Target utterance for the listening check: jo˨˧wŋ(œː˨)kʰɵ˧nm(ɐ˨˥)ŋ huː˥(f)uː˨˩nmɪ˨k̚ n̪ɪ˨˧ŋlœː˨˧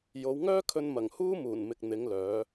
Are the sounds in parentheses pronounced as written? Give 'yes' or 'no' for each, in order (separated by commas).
no, no, no